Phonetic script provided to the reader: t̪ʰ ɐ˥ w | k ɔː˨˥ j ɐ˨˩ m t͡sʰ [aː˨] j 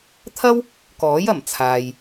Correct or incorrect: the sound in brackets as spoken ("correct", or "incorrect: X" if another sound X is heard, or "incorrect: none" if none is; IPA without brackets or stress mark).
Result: correct